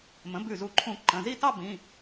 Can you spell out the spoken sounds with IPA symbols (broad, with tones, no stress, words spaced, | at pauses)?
mə̃˩˥bʉ˧˩zu˧˩ǃʰũ˧˩ ǃə̃˩˧˩zi˥˧ tɑ˥˧bĩ˩˧˩